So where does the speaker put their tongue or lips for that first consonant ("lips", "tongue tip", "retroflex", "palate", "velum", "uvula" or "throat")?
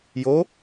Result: palate